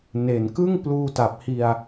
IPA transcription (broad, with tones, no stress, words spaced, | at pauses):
ne˨˩nkɯ˥˩ŋ pluː˧ta˨˩p̚hi˧a̯